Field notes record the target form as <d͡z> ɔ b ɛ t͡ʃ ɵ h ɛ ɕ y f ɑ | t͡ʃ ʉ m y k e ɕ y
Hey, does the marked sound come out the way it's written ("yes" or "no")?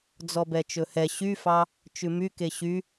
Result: yes